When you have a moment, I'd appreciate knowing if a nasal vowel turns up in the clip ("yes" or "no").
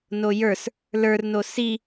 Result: no